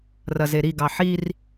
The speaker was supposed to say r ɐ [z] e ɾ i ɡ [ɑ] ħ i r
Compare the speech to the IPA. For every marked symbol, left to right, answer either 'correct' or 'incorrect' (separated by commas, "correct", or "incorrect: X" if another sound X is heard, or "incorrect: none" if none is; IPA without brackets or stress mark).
correct, correct